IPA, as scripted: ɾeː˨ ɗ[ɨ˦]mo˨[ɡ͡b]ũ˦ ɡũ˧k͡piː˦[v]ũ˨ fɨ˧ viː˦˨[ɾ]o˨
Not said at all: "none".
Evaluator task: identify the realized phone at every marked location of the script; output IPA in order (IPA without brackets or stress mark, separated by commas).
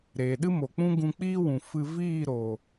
ɨ˦, k͡p, w, ɾ